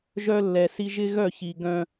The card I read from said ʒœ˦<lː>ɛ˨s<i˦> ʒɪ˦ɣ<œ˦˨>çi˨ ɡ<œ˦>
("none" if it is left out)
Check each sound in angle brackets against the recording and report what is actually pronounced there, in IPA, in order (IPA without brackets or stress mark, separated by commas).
lː, i˦, œ˦˨, œ̃˦